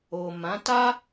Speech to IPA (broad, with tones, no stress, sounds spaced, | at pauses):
o˨ m ã˨˦ t a˦